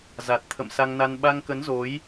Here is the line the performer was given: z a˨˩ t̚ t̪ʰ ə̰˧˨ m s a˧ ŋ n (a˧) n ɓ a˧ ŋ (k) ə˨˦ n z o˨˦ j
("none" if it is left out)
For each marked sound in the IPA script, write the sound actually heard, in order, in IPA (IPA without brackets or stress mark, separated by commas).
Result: a˧, k